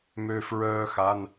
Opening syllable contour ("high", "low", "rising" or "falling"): high